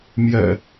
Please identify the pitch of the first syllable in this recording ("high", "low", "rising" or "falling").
low